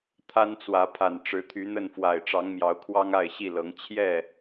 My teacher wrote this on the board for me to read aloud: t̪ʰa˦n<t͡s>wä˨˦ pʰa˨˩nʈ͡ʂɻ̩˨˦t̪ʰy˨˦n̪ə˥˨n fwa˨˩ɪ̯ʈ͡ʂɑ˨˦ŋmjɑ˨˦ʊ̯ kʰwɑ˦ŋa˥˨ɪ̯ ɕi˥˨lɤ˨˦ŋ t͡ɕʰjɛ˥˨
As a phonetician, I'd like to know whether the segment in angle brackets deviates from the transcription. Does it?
no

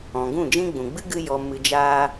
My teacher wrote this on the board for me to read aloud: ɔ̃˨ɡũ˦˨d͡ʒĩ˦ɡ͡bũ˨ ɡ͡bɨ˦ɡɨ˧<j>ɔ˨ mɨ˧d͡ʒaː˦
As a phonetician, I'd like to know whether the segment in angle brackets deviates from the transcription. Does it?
no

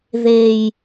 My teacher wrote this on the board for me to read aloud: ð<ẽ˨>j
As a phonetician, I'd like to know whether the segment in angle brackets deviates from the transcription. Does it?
yes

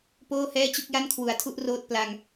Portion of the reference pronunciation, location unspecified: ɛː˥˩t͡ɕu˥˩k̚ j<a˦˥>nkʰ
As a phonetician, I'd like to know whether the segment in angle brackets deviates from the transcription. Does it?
yes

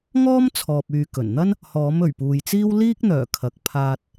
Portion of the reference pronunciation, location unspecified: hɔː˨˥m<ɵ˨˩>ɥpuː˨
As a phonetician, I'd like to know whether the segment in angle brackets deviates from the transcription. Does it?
no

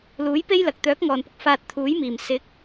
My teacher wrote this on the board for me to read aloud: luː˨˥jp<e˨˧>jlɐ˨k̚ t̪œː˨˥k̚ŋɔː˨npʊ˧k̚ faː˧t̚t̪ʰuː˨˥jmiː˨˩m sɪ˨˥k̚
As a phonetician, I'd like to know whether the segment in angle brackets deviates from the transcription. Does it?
yes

